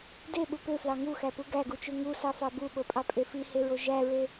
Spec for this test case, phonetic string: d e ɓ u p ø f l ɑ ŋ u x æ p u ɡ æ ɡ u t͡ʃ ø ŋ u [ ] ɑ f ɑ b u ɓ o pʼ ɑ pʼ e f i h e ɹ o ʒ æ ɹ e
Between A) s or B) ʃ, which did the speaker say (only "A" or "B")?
A